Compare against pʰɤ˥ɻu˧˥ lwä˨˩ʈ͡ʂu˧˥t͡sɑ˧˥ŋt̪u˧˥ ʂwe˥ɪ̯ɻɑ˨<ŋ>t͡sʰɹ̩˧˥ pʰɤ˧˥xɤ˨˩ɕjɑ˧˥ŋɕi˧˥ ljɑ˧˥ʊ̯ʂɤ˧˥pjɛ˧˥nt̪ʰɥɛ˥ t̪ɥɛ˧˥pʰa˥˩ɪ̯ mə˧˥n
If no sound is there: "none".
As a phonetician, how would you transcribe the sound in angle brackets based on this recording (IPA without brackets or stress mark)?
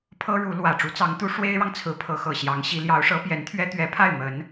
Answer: ŋ